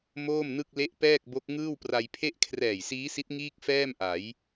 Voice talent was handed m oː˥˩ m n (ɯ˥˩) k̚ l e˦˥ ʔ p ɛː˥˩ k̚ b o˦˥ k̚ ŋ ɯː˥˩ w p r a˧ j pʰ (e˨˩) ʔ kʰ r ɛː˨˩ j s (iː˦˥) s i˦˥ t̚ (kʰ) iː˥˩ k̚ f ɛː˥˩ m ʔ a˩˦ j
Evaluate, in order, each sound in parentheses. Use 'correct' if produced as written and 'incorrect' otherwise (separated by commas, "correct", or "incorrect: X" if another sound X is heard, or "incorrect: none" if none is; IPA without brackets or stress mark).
correct, incorrect: e˥˩, correct, incorrect: ŋ